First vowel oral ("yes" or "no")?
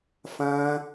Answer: no